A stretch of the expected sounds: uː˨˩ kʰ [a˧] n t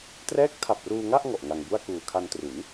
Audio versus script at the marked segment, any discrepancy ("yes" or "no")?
no